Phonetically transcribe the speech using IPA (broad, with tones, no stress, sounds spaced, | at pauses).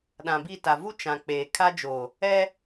ɗ ã˨ b i˦˨ t a˨ v u˦ t͡ʃ ã˨ k͡p eː˨ kʰ a˦ d͡ʒ o˨ | ɛ˦